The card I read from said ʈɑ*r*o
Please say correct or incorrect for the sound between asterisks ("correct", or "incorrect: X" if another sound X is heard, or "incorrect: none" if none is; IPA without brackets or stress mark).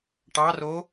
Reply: correct